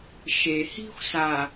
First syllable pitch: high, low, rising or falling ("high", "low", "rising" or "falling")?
low